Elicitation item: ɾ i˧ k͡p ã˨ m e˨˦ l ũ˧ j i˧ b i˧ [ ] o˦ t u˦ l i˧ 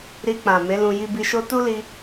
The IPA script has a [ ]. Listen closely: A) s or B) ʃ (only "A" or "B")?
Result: B